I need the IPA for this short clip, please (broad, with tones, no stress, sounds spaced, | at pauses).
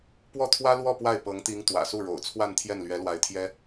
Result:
p w ɔ˥˩ t̪ʰ w ä˥ l w ɔ˥˧ p w a˥˩ ɪ̯ p ɤ˧˥ ŋ t̪ i˧˥ ŋ t̪ w ä̰˨˩ s u˥˩ ɻ o̰˨˩ ʊ̯ t͡sʰ w a˥˧ n t̪ʰ j ɛ˥˩ n l ɥ ɛ˧˥ l w a˧˥ ɪ̯ t̪ʰ j ɛ˥